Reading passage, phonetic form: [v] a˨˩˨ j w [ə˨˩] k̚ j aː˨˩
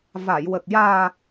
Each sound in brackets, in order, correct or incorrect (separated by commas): correct, correct